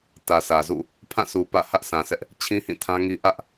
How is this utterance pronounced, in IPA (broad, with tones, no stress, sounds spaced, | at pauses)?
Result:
t ä˨ sʰ ä˨ z ṵ˦˨ | pʰ ã˦˨ s u˨ p ä̰˦˨ h ä˦ ʔ s ã˨ s ɛ˦ ʔ | t͡ɕʰ ĩ˦ h ĩ˦˨ tʰ ã˦ ŋ i˦ ʔ ä˦ ʔ